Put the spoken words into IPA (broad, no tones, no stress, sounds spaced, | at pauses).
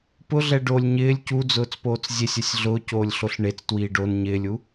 p ʊ ɮ ɛ ɖ o lʲ ɲ ɪː lʲ c u d͡z ʊː t͡s p oː t͡s zʲ e sʲ ɛ sʲ ɮ ʊː c oː lʲ ɬ o ɬ ɳ e t͡s t w iː ɖ o n ɲ ɪː lʲ u